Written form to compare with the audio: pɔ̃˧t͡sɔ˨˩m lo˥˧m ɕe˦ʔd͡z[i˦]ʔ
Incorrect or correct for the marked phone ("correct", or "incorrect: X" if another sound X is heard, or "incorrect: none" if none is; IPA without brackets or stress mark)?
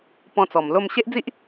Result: correct